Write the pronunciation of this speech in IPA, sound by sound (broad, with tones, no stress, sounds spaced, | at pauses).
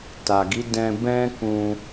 t a˨ ɡ i˨˦ d ɛ̃˧ b ɛ̃˦ k ũ˧